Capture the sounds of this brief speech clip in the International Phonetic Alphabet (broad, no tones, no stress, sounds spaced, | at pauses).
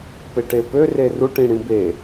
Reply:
p e ʈ e p ø r e r u ʈ ĩ ɽ ĩ b e